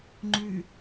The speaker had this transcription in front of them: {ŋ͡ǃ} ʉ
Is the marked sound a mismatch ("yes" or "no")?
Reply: no